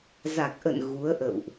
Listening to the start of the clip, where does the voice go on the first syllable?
low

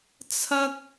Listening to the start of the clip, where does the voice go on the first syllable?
high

